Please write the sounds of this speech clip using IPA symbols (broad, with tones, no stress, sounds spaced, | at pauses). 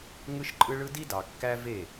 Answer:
ŋ ɯ˦ ʃ ǃʼ ɯ˦ ɭ ɯ˦ d i˦ d ɑ˨ kː æ˦ v e˦˨